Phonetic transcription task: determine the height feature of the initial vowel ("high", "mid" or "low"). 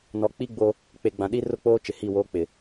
mid